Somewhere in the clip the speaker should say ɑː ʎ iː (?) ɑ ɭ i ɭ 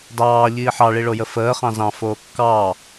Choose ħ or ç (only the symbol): ħ